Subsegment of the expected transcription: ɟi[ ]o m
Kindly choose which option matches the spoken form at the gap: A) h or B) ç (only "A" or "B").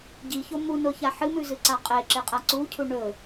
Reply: B